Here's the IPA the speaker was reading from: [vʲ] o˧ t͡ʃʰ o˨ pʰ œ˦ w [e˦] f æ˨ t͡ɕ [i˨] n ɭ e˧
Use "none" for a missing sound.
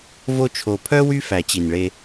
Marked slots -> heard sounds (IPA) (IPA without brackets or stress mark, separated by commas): v, y˦, i˨